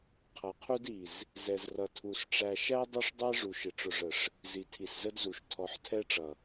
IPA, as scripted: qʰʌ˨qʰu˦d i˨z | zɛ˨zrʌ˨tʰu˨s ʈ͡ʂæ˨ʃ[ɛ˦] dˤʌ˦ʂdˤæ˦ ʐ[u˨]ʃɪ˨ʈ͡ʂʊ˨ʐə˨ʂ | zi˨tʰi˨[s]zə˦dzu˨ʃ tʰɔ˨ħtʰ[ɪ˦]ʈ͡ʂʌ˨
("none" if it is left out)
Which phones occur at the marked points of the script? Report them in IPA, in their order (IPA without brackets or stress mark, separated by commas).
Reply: æ˦, u˨, s, ɛ˦